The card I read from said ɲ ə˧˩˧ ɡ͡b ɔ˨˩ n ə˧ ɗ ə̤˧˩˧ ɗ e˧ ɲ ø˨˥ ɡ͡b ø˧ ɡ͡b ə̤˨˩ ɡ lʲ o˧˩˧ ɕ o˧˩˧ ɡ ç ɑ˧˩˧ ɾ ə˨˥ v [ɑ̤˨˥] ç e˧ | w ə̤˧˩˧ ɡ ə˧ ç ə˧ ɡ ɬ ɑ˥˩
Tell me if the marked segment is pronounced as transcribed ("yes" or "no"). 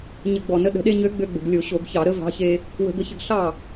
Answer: yes